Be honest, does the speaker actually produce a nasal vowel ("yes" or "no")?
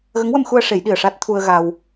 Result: no